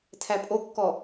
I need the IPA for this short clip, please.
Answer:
tʰ æ pʼ o kː ɔ

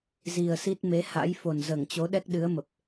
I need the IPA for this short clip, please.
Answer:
z i˨˩ ə̯ s i˦˥ t̚ m e˨˦ h a̰˧˥ j f o˨˩ n z əː˧˩ ŋ t͡ɕ o˨˦ ɗ ɛ˦˥ k̚ ɗ ɨ˨˦ ə̯ m ə˨˩ p̚

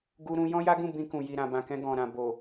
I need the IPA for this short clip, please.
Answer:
ɡ u˧ ɾ ũ˧ j ɔ̃˦ j a˦ ɡ ũ˦˨ b ĩ˧ k ũ˨ j i˨ ɾ ã˨ b ã˨ k ɛ̃˧ ɡ ɔ̃˨ ɾ ã˨ b o˨

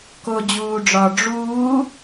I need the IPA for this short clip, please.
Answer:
k o d͡ʑ uː ɖ͡ʐ ɒː ɖ͡ʐ uː

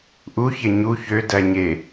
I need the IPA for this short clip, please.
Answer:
ʔ u ç e ɲ u ç ø d æ ɲ e

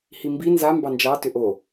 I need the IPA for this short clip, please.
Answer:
h i m b i n z a m b ɑ n d͡ʒ ɑ t ʏ ʔ o

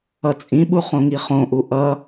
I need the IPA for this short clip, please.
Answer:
ʌ t͡sʼ ĩ ɓ u χ õ ŋ i χ õ ʔ u ʔ ʌ

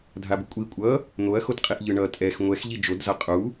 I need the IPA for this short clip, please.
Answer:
dʱ a b u kʷʼ i kʷʼ ʌ | n̪ o ɐ̯ x o t qʼ i ʔ ʎ ɯ ɳ ʌ tʼ ɛ x ŋʷ ɛ x ʎ i d͡ʒ o d z a qʼ u

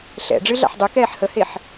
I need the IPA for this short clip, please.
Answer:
ɬ ɛ̰ ɖ͡ʐ ɨ ɮ a̰ ħ dˤ ɨ k ɛː ħ h ə h e ħ

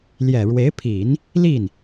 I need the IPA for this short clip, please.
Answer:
l j ɛ˨˩ ɻ w e˧˥ ɪ̯ pʰ i˨˩˦ n | l i˥˩ n

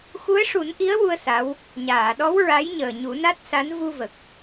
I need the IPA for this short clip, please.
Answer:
x u˧˥ ə̯ ʂ u˨˩˦ n ʔ i˧˥ ə̯ w u˧ ə̯ s a˧˥ w | ɲ aː˨˩˨ ɗ ɔ˧˥ w ɹ a˧˥ j ɲ əː˨˩ ɲ u˨˩˦ n a˦˥ t̚ s a˧˥ n v u˧ v ə˨˩ k̚

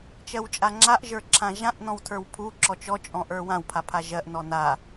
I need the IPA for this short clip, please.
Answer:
t͡ʃ ɜ w t͡ʃʼ a ŋ͡ǁ a ʔ ʒ ə˞ ǁʰ ã ʒ ã ʔ n ɔ̃ w tʰ ə˞ w pʰ u ǁ ɔ t͡ʃ ɔ t͡ʃʼ ɔ̃ ʔ ə˞ w ã w pʰ a pʰ a ʒ ɜ ʔ n ɔ n a

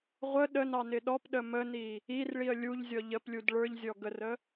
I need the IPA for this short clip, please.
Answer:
ʁʷ ə ɗ ə n ɑ n ɪ ɗ ɔ p ɗ ə m ə n i | i r ɭ i ə̯ lʲ u ʎ zʲ ɔ ʎ ə p lʲ u d ɭ ə˞ ʎ zʲ ɔ ɡ ə r ə

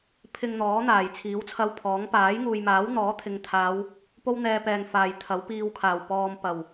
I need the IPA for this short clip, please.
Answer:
pʰ ɪ˧ ŋ n̪ ɔː˨˥ n̪ aː˨˩ j t͡sʰ iː˨˥ w t͡sʰ ɐ˧ w pʰ ɔː˨˥ ŋ p aː˨˥ j ŋ uː˨ j m aː˨˥ w n̪ ɔː˨˥ t̪ʰ ɪ˨ ŋ t̪ʰ aː˨˧ w | p o˥ w n̪ ɛː˧ p ɛː˨ ŋ f aː˨ j t̪ʰ ɐ˨˥ w p iː˧ w kʰ aː˨˩ w p ɔː˨ m p ɐ˨˩ w

